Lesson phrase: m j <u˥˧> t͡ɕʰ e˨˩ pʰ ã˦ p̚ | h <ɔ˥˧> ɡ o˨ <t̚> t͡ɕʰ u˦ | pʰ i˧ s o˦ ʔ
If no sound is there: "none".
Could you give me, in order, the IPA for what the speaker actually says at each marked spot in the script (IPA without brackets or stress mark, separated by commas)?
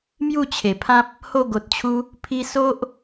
u˥˧, o˥˧, t̚